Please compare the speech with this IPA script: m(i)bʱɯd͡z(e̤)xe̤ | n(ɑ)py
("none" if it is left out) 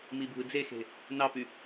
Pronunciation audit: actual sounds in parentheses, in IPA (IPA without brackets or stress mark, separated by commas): i, e, ɑ